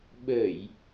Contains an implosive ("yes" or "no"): yes